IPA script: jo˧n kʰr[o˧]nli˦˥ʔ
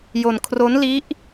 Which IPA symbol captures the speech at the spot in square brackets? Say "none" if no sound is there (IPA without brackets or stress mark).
o˦˥